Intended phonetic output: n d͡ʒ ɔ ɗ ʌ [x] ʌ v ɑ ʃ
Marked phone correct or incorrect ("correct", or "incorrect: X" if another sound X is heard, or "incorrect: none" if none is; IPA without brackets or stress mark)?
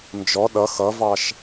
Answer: correct